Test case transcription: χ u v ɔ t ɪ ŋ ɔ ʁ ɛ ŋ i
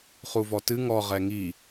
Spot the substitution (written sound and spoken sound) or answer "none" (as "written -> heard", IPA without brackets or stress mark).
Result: ɪ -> ɨ